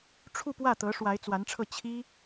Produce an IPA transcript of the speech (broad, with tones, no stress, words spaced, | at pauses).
ʈ͡ʂʰu˥˧pwä˥˩t̪ɤ˧˥ ʂwa˧˥ɪ̯t͡swa˧˥nʈ͡ʂʰɤ˥˩ t͡ɕʰi˥